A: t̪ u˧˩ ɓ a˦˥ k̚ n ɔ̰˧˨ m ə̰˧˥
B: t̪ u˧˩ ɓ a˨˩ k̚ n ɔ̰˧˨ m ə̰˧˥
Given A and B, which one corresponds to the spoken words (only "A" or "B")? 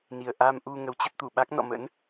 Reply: A